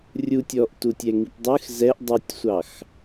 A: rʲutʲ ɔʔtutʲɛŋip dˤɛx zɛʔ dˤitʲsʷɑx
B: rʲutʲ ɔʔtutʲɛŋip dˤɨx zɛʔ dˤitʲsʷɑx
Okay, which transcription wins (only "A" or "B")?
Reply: B